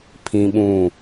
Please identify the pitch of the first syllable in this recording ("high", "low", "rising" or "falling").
high